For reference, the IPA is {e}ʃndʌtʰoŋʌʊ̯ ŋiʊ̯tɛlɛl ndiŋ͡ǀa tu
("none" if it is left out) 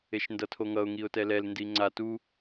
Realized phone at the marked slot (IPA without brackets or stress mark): e